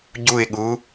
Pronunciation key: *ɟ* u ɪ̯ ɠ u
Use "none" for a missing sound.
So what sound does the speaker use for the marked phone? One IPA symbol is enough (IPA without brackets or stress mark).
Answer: ɟ